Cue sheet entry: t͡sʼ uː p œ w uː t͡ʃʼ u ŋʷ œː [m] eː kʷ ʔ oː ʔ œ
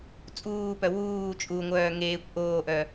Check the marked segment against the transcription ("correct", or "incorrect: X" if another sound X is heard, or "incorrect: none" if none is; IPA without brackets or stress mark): incorrect: ŋ